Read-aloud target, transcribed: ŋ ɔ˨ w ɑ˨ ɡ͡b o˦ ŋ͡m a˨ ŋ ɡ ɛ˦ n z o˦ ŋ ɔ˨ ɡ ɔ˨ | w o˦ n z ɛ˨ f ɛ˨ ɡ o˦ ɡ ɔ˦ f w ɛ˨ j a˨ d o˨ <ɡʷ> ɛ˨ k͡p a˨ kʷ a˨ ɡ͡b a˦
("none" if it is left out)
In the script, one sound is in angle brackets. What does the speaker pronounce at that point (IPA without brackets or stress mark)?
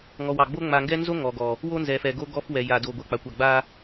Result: ɡʷ